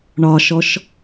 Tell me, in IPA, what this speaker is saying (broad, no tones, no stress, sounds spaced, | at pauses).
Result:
ɳ ɒ ʃ ɔ ʃ